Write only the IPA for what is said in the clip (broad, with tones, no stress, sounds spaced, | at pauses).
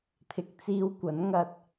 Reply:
t̪ʰ ɪ˨ k̚ t͡s iː˧ w kʷ ɐ˨˥ n ŋ ɐ˧ t̚